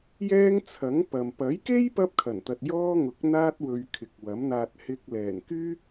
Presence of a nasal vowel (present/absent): absent